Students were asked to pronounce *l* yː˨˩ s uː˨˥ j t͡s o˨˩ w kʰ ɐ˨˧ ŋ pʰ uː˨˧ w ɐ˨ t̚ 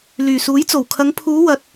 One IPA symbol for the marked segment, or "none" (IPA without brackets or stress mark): l